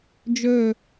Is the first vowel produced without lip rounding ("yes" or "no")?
no